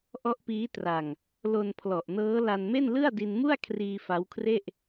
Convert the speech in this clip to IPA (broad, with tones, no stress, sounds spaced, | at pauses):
ʔ ɔ˦˥ ʔ p iː˦˥ t r a˧ ŋ | l o˧ n pʰ l ɔ˨˩ ʔ n ɤː˦˥ l a˧ n m e˥˩ n l ɯ˥˩ a̯ d i˧ n m u˥˩ a̯ kʰ r iː˧ f a˦˥ w kʰ r e˥˩ ʔ